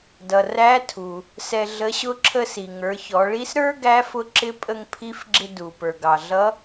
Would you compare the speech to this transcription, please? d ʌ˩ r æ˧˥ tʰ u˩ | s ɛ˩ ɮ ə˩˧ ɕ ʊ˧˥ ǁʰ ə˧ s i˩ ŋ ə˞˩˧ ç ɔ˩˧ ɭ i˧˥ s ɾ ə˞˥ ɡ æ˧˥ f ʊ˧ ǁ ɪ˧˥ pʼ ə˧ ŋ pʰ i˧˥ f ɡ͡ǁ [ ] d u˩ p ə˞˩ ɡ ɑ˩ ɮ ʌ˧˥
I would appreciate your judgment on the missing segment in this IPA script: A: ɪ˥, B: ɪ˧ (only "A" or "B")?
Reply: B